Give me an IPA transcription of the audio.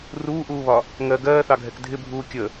r uː ʔ uː β ɒ | ŋ ɜ ɡ ɜː θ ɑ ɡʱ ɛ k dʱ ɪ bʱ uː kʲ ə

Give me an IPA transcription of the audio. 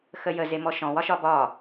x ə j ə z e m ɔ ʃ ɔ̃ w ɒ ʃ ɒ b ɒ

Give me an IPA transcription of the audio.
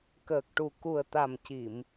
k əː˨˩ k̚ ʈ u˨˩ k u˨˩ ə̯ t̪ a˨˩ m c i˨˩˨ m

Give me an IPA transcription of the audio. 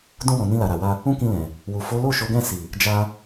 d ũ˧ w ɔ̃˨ n ĩ˧ l a˨ ɾ a˨ w a˧ | ũ˦ k ĩ˧ l ɛ̃˨ | w u˨ f o˨˦ l o˦˨ ʃ o˨˦ ɡ ɛ̃˦˨ s i˨ | d͡ʒ a˧

